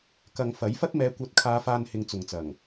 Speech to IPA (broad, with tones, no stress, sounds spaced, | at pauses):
k ɐ˨ ŋ f ɐ˨˥ j f ɐ˥ t̚ m ɛː˨˧ kʷ ɐ˨˥ t̚ kʰ aː˨˧ f aː˧ n h ɪ˨ ŋ t͡s ʊ˨ ŋ t͡s ɐ˨˩ ŋ